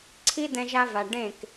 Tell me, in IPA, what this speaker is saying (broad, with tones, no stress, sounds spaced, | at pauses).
ǀʰ i˦ d ɛ̃˧ ʒ a˧ v a˨ ɖ ẽ˦˨ k